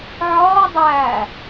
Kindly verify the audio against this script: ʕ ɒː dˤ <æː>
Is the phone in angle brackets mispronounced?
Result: no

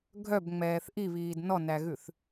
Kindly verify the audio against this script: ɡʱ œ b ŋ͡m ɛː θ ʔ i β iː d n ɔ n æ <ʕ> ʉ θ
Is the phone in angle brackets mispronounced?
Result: yes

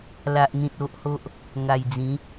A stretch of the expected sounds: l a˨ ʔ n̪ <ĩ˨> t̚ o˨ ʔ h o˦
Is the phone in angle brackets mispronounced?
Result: no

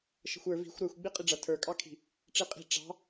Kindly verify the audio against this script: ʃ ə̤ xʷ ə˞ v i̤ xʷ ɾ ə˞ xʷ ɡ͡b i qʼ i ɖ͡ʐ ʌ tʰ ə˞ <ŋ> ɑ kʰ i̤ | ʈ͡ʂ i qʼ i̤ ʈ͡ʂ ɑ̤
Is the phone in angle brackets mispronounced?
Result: yes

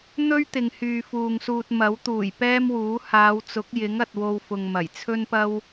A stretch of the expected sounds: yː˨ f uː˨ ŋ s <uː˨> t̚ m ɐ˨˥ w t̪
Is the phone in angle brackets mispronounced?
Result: yes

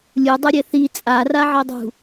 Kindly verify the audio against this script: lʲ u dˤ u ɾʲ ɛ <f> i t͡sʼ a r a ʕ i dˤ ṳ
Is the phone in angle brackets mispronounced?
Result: yes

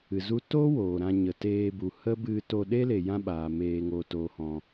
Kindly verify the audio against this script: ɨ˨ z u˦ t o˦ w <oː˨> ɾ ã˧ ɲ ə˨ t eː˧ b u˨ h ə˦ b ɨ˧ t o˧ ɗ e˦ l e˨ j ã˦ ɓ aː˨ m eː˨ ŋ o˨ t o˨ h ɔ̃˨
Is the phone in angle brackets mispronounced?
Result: no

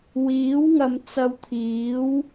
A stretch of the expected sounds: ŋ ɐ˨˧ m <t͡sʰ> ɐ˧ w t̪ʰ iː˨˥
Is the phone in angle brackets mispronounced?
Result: yes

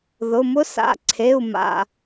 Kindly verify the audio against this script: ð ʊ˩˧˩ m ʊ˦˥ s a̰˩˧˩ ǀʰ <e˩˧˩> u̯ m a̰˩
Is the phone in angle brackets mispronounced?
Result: no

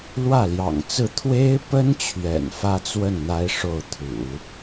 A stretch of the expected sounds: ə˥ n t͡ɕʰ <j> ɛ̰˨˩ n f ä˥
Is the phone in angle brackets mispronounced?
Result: yes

